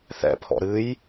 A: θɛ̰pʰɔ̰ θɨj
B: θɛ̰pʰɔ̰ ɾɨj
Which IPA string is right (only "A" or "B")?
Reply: B